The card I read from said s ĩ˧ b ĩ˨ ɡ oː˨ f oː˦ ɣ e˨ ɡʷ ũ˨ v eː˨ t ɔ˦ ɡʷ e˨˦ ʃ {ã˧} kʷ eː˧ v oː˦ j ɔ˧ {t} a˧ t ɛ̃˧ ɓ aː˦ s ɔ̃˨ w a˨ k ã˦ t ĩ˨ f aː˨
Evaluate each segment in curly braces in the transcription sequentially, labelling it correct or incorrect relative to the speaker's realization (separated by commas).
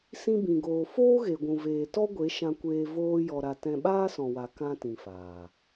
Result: correct, incorrect